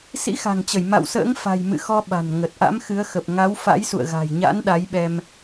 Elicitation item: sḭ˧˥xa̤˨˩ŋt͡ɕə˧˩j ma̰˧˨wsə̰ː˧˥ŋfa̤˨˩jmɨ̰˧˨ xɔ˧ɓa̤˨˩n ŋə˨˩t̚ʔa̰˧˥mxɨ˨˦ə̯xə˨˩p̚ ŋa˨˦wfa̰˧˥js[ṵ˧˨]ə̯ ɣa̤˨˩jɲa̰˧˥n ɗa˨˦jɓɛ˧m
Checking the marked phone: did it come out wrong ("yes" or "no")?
no